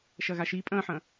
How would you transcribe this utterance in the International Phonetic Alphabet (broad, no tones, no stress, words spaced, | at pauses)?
ʃɐɣaʃi pʼɐ̃ːħɐ̃ː